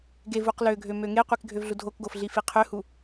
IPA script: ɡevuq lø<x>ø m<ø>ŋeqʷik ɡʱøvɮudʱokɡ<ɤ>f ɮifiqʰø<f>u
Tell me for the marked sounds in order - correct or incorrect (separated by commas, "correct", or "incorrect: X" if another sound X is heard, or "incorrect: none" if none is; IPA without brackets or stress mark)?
incorrect: ɡʱ, correct, incorrect: o, incorrect: h